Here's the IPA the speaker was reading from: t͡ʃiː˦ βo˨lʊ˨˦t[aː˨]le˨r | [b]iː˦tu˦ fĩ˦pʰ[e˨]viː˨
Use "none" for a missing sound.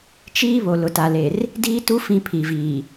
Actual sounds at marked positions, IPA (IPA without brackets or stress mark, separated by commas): a˨, d, i˨